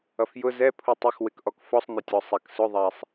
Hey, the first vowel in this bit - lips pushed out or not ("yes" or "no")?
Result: no